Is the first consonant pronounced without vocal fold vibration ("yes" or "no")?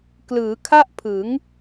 yes